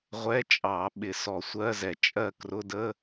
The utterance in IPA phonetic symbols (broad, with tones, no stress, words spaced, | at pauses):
ʁʷɛ˧˥˧t͡ʃʼɑ˧˩˧ ɓɪ˧˩˧sɔ˧˩˧sʷɜ˧˥˧zɛ˧˩˧ t͡ʃʼɜ˥˨ krʊ˧˥˧də˧˥˧